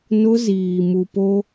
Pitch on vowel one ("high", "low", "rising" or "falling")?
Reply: high